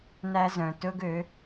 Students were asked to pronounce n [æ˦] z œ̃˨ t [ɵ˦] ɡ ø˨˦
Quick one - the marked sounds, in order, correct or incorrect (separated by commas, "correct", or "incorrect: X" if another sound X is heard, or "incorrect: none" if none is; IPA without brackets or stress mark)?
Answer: correct, correct